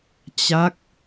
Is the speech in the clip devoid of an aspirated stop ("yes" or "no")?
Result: yes